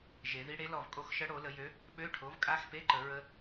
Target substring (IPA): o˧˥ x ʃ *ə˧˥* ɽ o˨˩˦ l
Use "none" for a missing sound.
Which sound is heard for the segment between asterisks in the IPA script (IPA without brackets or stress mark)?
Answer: ə˧˥